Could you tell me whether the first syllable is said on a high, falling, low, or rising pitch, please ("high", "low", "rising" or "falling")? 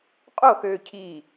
falling